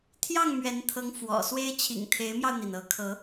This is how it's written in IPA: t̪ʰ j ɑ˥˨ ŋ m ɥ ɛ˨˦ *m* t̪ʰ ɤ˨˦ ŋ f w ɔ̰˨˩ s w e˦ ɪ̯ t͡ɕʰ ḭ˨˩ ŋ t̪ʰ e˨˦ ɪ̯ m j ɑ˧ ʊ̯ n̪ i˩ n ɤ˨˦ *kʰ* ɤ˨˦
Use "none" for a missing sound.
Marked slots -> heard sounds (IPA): n, kʰ

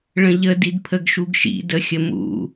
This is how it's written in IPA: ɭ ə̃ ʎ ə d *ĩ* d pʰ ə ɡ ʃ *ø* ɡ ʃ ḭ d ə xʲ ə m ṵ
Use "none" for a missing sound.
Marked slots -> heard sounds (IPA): i, u

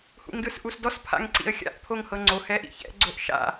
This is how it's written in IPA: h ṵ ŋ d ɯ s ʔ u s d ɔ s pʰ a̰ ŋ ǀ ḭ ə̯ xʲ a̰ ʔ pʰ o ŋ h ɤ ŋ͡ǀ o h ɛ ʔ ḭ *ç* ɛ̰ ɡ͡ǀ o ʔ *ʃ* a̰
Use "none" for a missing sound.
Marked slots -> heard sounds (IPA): ç, ʃ

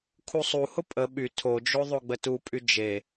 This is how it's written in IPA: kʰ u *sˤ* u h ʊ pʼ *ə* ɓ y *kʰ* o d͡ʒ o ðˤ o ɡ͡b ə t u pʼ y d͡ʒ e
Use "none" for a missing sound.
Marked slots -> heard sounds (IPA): sˤ, ə, tʰ

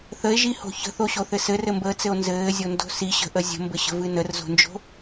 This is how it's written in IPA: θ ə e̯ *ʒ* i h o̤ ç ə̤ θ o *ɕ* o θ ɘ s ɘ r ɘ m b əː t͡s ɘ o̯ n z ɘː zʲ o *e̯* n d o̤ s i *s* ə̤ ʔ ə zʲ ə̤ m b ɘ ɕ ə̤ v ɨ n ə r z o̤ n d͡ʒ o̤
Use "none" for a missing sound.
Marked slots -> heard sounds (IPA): ʒ, ɕ, none, ɕ

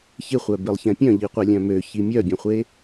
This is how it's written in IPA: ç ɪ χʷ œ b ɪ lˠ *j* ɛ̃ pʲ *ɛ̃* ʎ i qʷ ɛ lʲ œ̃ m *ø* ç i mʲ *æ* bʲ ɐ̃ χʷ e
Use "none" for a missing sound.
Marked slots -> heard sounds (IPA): ç, œ̃, ø, œ

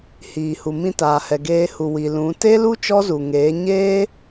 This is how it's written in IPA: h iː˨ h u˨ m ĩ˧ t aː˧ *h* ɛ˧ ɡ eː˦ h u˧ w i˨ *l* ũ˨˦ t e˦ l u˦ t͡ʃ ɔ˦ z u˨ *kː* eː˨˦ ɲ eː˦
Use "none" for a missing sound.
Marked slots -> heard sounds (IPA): h, l, ŋ

